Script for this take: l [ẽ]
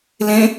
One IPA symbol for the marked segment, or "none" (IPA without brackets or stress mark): ẽ